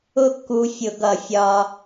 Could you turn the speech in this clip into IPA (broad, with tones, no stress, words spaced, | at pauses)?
ʊ˥kːu˧ fʲʊ˧˩˧ɡʌ˧˩˧ fʲɒ˧